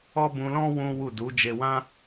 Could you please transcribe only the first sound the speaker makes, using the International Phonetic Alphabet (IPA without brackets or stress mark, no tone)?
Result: ɔ